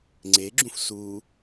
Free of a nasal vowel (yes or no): no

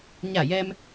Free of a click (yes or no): yes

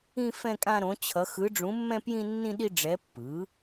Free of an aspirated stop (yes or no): no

